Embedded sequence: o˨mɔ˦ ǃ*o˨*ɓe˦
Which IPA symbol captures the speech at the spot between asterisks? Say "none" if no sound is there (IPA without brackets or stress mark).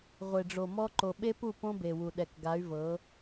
o˨